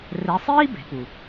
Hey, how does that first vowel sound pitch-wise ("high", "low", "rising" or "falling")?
rising